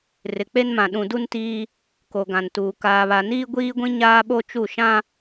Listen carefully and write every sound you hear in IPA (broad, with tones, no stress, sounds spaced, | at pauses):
r ɪ˨ k͡p e˦ n m ã˨ ɗ ũ˨ d u˦ n t iː˦ | k o˨ ɡ ã˨ n t uː˨ k aː˨ β a˨ n iː˦ ɡʷ iː˦ ɡʷ ĩ˦ ɲ aː˦ ɓ o˦ t͡ʃ u˦˨ ʃ ã˦